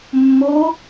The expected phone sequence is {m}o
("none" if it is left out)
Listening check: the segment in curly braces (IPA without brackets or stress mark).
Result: mː